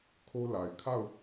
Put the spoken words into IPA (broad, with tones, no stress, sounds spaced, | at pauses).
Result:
kʰ o˦ l a˨ ɪ̯ kʰ a˦˨ ʊ̯